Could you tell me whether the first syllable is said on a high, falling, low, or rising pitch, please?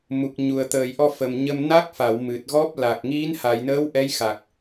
low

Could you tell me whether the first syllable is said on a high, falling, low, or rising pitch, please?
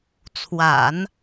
low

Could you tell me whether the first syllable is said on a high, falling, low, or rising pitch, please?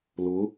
rising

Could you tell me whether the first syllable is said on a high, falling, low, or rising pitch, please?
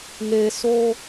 low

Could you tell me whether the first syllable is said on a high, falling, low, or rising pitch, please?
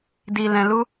low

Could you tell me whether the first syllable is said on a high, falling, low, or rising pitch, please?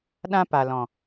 high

